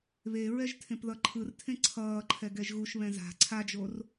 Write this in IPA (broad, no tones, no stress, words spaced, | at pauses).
βeɹɛʒ tʰẽpðʌǃʰɯrtʰẽ ǀʰʌːǃʰɛ ɡɛʒɣuʃβɛ̃ za̤ ǀʰad͡ʒor